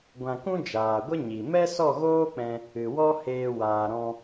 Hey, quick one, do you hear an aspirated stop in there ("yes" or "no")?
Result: no